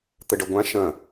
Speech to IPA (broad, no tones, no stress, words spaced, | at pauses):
t̪əɖɐɡʷã ʃɐ̃